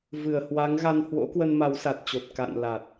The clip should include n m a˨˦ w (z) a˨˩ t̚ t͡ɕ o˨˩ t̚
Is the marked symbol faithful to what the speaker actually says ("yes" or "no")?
no